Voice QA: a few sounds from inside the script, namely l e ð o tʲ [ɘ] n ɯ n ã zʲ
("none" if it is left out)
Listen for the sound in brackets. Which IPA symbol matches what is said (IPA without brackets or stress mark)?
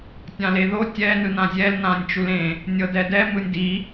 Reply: ɛ